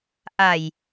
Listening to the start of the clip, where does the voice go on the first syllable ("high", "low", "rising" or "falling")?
low